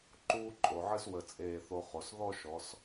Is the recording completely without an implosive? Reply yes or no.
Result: yes